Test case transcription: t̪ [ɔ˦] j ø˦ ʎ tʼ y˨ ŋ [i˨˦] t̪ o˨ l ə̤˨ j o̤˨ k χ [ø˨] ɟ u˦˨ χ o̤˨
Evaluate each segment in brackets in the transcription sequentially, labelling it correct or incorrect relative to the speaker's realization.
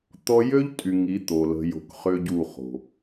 correct, correct, incorrect

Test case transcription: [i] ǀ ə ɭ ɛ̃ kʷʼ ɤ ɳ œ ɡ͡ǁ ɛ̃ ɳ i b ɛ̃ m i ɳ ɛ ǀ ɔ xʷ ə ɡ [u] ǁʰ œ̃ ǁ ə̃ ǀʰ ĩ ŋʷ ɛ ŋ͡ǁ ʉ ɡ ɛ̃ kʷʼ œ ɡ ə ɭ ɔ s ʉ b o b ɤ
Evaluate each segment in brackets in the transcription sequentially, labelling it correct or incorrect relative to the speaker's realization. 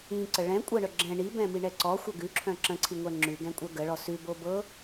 incorrect, incorrect

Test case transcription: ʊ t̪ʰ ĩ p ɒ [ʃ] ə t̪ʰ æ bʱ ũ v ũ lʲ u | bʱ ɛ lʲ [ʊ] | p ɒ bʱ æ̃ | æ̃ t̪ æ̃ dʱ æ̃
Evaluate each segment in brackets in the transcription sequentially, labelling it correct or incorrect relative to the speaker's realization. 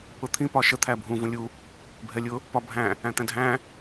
correct, correct

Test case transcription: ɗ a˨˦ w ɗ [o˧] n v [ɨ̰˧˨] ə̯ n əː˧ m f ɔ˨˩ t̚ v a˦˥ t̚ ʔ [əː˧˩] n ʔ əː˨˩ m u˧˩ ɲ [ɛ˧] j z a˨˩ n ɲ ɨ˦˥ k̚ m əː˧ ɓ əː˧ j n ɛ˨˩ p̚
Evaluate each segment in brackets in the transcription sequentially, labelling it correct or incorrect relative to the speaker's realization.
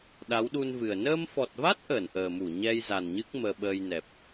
incorrect, incorrect, correct, correct

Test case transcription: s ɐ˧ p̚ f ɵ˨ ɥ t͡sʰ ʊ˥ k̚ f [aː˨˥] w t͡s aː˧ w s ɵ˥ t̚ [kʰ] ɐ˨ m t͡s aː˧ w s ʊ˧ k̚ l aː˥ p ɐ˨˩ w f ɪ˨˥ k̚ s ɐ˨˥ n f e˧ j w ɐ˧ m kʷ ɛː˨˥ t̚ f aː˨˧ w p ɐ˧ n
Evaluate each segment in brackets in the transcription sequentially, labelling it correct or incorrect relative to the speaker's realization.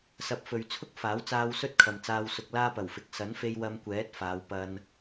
correct, correct

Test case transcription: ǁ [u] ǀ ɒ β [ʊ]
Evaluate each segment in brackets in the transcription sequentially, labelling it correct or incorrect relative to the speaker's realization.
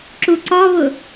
correct, correct

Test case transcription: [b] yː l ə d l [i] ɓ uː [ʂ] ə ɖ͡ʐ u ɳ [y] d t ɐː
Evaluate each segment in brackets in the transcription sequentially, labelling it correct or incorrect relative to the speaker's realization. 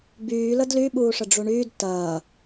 correct, incorrect, correct, incorrect

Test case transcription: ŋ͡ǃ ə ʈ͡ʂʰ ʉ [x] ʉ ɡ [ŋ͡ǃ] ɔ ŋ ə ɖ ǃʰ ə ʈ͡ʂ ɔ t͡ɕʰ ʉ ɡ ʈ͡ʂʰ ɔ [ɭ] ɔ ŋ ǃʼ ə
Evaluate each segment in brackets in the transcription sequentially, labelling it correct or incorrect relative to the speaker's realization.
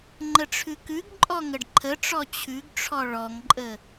incorrect, incorrect, correct

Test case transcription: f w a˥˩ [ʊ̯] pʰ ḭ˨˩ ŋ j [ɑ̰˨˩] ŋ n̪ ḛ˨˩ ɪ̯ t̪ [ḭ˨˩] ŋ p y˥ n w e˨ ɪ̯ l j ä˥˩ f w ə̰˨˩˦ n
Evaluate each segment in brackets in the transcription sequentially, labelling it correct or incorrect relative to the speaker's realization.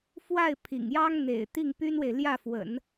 incorrect, incorrect, incorrect

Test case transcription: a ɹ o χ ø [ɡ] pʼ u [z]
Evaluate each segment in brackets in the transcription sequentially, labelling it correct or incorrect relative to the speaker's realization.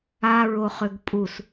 correct, incorrect

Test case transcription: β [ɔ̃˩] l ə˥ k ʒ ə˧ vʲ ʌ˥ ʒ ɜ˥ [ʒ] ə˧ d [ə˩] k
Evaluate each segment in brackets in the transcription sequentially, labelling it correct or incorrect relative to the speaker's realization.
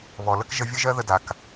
incorrect, incorrect, incorrect

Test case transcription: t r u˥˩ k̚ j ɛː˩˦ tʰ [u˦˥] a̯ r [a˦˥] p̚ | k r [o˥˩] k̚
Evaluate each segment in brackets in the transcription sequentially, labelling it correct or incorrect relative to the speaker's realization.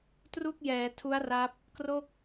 correct, correct, correct

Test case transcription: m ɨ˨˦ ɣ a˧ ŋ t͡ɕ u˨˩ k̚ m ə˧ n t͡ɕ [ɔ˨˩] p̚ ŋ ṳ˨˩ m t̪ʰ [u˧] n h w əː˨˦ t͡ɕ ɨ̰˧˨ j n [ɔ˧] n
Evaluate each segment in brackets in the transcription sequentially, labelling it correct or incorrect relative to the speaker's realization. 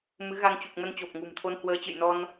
incorrect, incorrect, correct

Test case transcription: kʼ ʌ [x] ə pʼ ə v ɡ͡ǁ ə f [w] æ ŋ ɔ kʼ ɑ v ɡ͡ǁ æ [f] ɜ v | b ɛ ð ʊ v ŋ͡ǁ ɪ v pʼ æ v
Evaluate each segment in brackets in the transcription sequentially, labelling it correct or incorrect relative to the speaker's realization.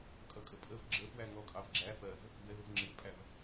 incorrect, correct, correct

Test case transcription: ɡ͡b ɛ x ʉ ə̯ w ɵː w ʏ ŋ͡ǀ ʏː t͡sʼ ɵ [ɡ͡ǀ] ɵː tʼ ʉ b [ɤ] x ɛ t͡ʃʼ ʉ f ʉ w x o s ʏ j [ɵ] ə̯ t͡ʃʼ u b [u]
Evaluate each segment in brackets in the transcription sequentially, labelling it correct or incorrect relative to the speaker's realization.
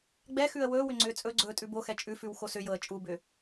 correct, incorrect, incorrect, incorrect

